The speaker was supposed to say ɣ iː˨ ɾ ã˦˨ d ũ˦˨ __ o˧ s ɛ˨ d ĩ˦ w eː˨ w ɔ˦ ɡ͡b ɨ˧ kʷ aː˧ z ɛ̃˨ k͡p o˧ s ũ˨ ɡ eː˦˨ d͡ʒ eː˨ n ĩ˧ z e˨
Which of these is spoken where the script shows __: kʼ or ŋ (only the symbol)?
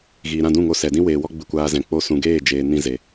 ŋ